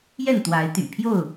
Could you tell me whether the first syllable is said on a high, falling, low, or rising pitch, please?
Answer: falling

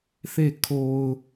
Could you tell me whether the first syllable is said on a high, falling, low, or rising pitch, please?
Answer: falling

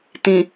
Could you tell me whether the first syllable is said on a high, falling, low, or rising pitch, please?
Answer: low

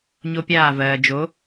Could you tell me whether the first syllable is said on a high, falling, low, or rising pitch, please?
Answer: high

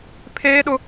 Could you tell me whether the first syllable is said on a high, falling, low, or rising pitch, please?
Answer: high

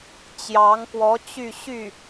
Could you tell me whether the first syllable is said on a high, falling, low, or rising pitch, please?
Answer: rising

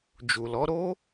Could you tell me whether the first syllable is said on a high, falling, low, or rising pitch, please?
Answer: low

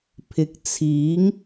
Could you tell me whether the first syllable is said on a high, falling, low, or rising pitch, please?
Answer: low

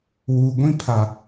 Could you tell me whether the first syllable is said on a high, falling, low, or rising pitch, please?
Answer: low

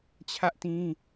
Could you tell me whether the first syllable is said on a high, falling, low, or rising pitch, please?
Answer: high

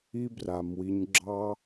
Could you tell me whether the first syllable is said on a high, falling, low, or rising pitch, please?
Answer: high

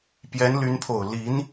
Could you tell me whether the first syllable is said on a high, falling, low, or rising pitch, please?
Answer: rising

